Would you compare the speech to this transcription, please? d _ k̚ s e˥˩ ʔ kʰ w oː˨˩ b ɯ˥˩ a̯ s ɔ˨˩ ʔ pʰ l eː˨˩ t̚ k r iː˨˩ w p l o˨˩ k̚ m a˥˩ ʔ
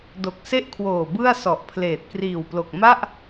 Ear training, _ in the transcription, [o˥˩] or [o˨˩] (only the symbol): o˨˩